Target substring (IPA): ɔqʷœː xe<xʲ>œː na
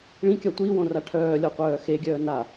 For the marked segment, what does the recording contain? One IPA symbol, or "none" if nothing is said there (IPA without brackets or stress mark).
ɡʲ